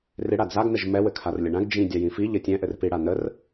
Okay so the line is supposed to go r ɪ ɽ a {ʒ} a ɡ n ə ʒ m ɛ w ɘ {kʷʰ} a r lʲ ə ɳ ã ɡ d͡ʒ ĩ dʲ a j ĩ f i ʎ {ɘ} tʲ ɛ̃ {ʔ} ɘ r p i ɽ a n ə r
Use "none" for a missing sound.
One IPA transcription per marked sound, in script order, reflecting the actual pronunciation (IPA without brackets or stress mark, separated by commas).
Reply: d͡z, kʰ, ɘ, ʔ